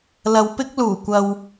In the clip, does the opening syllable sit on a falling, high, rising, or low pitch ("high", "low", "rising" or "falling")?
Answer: low